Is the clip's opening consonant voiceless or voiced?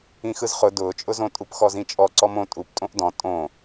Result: voiceless